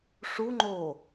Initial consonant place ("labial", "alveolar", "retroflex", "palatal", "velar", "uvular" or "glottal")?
retroflex